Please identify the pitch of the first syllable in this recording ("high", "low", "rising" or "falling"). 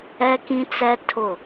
high